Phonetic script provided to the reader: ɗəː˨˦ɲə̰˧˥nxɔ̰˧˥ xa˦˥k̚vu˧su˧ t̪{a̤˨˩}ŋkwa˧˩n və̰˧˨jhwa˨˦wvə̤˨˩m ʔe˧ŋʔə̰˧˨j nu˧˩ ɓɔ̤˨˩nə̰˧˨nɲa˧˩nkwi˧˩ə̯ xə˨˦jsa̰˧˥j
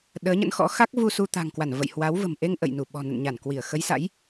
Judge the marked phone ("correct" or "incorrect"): correct